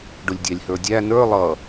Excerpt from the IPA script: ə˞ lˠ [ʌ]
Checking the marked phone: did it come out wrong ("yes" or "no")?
no